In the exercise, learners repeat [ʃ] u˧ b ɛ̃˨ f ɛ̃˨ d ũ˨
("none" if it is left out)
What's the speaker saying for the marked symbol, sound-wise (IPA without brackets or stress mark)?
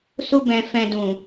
s